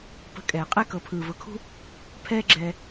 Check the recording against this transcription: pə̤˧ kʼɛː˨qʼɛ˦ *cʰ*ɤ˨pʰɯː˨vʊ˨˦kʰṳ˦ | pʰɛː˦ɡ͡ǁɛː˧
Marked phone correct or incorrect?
incorrect: k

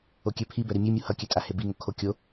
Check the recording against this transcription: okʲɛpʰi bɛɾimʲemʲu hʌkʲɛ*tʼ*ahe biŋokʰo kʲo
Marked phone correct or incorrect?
correct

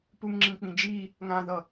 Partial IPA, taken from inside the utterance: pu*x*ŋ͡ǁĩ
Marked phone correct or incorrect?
incorrect: ŋ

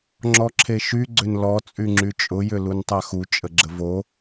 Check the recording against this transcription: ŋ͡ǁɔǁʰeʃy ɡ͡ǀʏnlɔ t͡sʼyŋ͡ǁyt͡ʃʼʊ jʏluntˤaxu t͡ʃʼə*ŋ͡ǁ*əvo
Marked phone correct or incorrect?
incorrect: ɡ͡ǁ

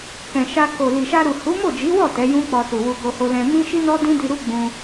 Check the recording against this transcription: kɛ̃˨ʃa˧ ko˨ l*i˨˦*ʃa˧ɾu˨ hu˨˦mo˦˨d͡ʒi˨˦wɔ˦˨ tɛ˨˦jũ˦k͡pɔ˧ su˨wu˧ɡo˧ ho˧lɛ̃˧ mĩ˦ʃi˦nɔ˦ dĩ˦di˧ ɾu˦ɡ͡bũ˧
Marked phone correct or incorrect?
incorrect: i˨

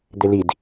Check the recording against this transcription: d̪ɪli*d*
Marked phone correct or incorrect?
correct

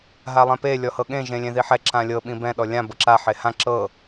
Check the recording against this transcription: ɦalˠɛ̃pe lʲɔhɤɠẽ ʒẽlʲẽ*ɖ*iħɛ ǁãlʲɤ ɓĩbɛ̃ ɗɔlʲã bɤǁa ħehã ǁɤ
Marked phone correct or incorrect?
incorrect: ð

